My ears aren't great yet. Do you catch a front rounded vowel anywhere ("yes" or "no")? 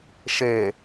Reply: no